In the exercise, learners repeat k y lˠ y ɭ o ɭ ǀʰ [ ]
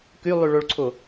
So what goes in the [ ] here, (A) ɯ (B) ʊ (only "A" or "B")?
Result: B